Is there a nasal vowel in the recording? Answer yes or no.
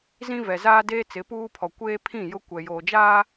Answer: yes